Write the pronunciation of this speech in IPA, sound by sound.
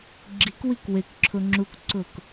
ɡ͡ǁ i k w i k w e k ǁʰ ʊ ŋ͡ǁ u k ǀ ʊ k

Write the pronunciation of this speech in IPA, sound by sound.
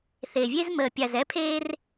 θ e˨ vʲ e˦ z m əː˨ pʲ a˨ z ɛ˦ pʰ eː˦ r

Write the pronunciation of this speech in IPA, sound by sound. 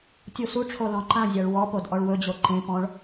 tʲ u s u ʈ͡ʂʰ o l ɔ̃ ǃ ã zʲ a ɭ w ɔ p o d ʔ ɔ ɭ w ɵ d͡ʑ o ǃ ẽ p ɔ̃ ɭ

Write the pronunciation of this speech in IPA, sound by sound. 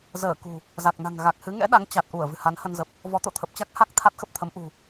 z əː˧˩ k ṳ˨˩ | z a˨˩ k̚ n a̤˨˩ ŋ ɣ a˨˩ k̚ h ɨ˨˦ ŋ ɛ̰˧˥ ɗ a˨˦ ŋ t͡ɕ a˨˩ t̚ ʔ u˧˩ ə̯ v ɨ̤˨˩ h a˨˦ n h ə˧ n z ə˨˩ p̚ | v ɔ˨˦ t̪ o̰˧˨ t̪ʰ ə˨˩ p̚ t͡ɕ a˦˥ k̚ h a˦˥ k̚ t̪ʰ a˦˥ t̚ x ə˦˥ p̚ t̪ʰ ə˨˦ m ʔ ṳ˨˩

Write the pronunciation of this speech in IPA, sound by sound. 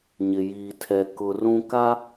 ɲ ɪ˨ j iː˨ tʰ ɛ˨ k ʊ˨ r ũ˦ k a˦

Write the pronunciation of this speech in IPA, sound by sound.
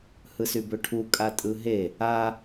h ɯ s y b ø ʈʰ u kʼ a tʼ ɯ ɦ e | a

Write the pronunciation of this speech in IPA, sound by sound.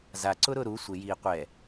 z a ǀ ʊ ɾ ʊ ɾ u sʷ ɪ j iː qʷ ɛ

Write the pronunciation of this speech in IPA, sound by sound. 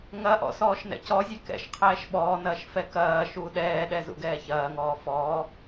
ŋ ɐ ʔ ɔ̰ s ɔː ʃ n ɛ̰ c ɔ zʲ ɛ k ɛ̰ ʃ qʰ ɛː ʃ ɓ ɔː n ɐː ʃ f ɛ k ɐː ʃ uː ɗ ɛː ɗ ɛ z ṵ ɡ ɛː ç ɐː ŋ ɔː f ɔː

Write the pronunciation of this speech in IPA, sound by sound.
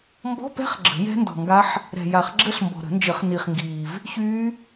m b ɔ̤˧˥˧ p ɛ̤˦˥ χ ɡ͡ǁ ə̤˨˩˦ j ɛ̤˦˥ n d ɔ̤˨ ŋ ɡ a˦˥ ħ | ɾ ɛ̤˨ j a˨˩˦ χ ɡ͡ǁ ə˦˥ ɬ m b ɔ̤˨ ɾ ə̤˨˩˦ n d͡ʒ ə˨˩˦ χ n i˨ χ ŋ ɡ iː˨ v | ç yː˦˥

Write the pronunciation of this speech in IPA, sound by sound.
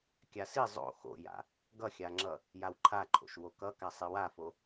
kʲ a s i zˤ o̰ x o̰ j a̰ | ɡ ʌ xʲ a ŋ͡ǁ ʌ | j a w ǃʰ a ǃʰ o̰ ʃ w o k ʌ k a sˤ i w a f o

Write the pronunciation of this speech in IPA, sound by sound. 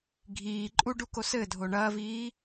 ɡʱ iː ǃʼ u ɖ u k o s ɘ dʱ o ɳ ɐː v iː

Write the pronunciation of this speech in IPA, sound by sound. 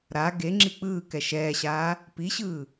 ɾ a ɡ e ŋ͡ǁ i k͡p ɯː k ɛ ʃ ɛː ɕ aː | p i ɕ ɯː

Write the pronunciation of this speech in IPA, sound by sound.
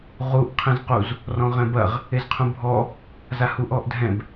ʁ u ʔ qʰ ẽ z q u z | r ɔ̃ ʁ ɛ̃ b ɐ ʁ | e z qʰ ũ bʱ ɔ | z a h u ʔ ɔ ʔ dʱ ɛ̃ b

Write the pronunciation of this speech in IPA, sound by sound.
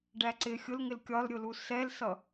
ɖ æ ǀ ɪ xʲ ʊ l ŋ ɪ l kʲ ɒ l ɾʲ ʊ l u s ɛ l s ʌ

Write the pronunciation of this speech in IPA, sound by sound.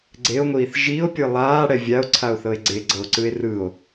ɡ͡ǀ e o̯ ŋʷ iː θ ʒ i o̯ pʲ ɯ lˠ aː ɽ ɛ vʲ a o̯ ǀʰ a o̯ θ ɤ e̯ ɡ͡ǀ e ɡ͡ǀ ɤ o̯ ǀ ɯ e̯ r ɯ o̯

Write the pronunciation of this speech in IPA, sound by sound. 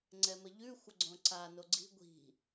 ŋ͡ǀ ɛ m ə ʎ ʉ xʷ ə ɡ͡ǀ õ ǀ a n o ɡ͡ǀ i̤ ɡʷ i̤

